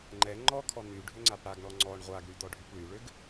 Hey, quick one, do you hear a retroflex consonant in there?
yes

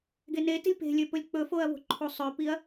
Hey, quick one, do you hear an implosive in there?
no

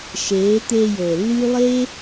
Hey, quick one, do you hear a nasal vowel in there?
no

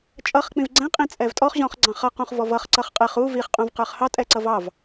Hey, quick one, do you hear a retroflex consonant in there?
no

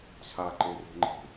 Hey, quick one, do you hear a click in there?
yes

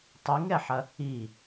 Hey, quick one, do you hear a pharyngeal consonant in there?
yes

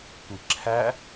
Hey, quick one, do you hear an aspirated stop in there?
yes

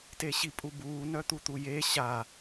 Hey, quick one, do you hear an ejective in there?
yes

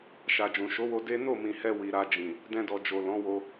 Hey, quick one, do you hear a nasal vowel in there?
yes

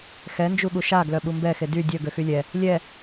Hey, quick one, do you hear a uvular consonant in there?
no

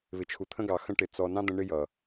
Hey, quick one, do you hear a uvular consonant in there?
no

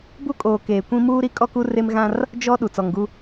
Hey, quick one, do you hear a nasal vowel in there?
yes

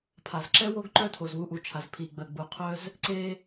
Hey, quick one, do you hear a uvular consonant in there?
yes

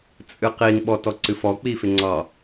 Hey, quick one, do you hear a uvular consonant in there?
yes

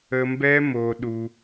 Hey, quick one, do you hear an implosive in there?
yes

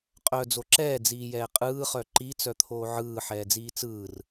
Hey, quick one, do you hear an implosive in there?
no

